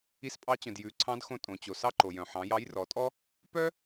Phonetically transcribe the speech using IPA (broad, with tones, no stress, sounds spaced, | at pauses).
i˧ s pʼ ɑ˧˥ t͡ɕ œ̃˩ d j ʉ˩˧ ǀʰ ɑ̃˧˥ d x õ˧ tʼ õ˩ t͡ɕ o˩ s ɑ˥ ǃ o˩ j œ̃˩ ħ ɑ̃˩˧ j ɑ˧˥ j r ɔ˩˧ tʼ ɔ˥ | p œ˥